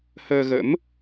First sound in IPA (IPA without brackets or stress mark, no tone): h